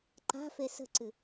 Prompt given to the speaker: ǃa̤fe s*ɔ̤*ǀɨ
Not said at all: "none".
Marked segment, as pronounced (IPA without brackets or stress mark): ə̤